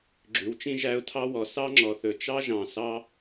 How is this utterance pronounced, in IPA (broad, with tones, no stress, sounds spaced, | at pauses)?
ɡ͡ǁ ʉ˩ w t͡ʃ ĩ˥ ʒ æ˥ ʊ̯ tʰ ɑ˥ w ɔ˩ s ɑ˥ ŋ͡ǁ ɔ˩ θ ɵ˩ t͡ʃ ɑ˥ ʒ ɑ̃˩ s ɑ˥